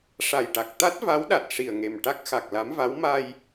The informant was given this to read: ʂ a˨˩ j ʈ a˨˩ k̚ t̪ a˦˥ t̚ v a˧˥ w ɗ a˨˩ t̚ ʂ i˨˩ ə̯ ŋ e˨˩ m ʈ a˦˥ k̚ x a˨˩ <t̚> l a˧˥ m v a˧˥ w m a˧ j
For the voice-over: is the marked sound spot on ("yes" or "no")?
no